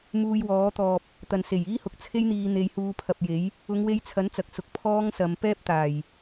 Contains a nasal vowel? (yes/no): no